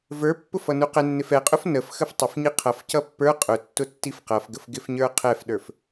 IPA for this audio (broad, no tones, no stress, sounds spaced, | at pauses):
v ə˞ pː ʊ f ʌ n u q ɛ nː ɪ f ɛ qʼ ʊ f n ə f x ə f tˤ ɪ f ɲ i qʰ ʌ f c ʌ pː ə˞ qʼ ʊ tː ʊ tː i f q ʌ f ɡ ə f ɡ ɪ f ɲ ə˞ qʰ ɛ f ɗ ə˞ f